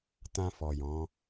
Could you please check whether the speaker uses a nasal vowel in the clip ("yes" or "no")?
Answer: yes